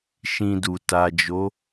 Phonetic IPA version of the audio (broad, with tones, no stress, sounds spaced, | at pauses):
ʃ ĩ˧ d u˨ t a˨ d͡ʒ o˨˦